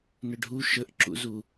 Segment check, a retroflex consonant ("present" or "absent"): present